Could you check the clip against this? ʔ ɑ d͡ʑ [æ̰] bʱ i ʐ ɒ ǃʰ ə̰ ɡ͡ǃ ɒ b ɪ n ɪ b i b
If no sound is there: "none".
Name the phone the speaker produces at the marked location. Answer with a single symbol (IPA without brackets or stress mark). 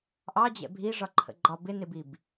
ɛ̰